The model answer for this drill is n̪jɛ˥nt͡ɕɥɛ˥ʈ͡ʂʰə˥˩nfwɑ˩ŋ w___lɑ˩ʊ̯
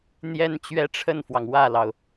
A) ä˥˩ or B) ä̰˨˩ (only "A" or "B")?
A